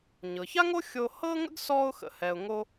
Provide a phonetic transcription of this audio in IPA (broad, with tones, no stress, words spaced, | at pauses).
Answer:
ɲɤ˩ça˥ŋo˥ xʲo˧hɤ˥ŋə̰˥ɡ sɔ˧ʊ̯xə̰˩hɛ˩ʊ̯ ŋo˧